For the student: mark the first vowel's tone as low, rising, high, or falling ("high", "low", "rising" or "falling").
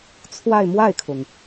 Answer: falling